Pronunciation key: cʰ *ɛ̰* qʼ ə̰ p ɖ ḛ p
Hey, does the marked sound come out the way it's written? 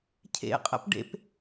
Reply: no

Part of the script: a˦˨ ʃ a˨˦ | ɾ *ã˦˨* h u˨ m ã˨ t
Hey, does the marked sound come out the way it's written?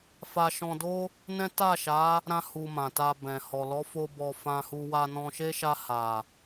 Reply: no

